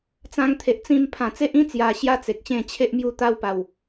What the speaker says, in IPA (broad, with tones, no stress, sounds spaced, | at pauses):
t͡s ã˧ ŋ t̪ʰ e˨ ʔ t͡s ĩ˧ m pʰ ã˨˩ t͡s e˦ ʔ ĩ˦ t͡s j a˨˩ ɕ j a˧ t͡s e˨ k̚ ɕ ẽ˥˧ t͡ɕʰ e˦ ʔ m j u˧ t̪ a˧ w p a˨˩ w